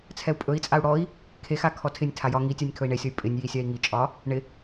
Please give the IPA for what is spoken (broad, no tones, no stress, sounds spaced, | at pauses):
t͡sʰ ɛ u̯ pʼ ɵ i̯ t͡sʼ a u̯ ɽ ɔ i̯ | kʰ e x a kʰ ɔ tʰ ɪ nʲ tʰ a j ɒ ŋ i tʲ a nʲ kʰ ɵ i̯ ɳ e sʲ ɔ y̯ pʼ ɪ nʲ j i sʲ a i̯ ŋ i t͡ʃʼ ɒ | ɳ ɪ